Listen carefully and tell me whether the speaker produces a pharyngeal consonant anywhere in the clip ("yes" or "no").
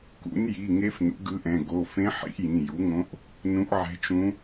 yes